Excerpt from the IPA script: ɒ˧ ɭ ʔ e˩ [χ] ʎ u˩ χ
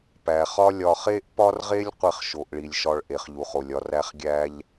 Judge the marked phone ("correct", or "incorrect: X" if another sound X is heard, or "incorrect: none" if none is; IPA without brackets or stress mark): correct